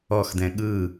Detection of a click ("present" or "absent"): absent